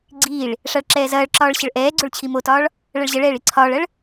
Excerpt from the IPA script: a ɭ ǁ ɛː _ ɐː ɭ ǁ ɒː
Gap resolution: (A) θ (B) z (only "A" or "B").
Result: B